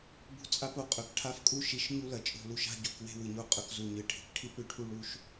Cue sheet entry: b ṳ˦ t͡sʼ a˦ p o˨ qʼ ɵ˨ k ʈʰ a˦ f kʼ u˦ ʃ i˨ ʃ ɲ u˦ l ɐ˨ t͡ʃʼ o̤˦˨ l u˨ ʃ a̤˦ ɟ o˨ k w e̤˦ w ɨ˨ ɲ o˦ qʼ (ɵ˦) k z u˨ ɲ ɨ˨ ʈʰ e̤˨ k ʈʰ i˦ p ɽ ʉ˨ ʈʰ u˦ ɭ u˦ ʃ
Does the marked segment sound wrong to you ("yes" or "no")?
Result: no